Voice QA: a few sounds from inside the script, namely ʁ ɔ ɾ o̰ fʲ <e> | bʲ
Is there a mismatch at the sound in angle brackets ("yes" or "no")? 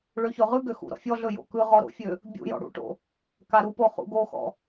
yes